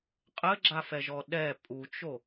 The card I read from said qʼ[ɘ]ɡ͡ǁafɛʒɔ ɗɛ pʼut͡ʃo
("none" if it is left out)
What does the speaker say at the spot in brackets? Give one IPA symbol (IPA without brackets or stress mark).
ɘ